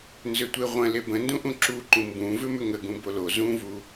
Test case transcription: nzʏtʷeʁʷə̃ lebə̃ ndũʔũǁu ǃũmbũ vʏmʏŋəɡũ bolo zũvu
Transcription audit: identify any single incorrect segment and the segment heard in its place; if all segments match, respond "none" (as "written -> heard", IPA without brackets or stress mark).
none